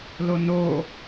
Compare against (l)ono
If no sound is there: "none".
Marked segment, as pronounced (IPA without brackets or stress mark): l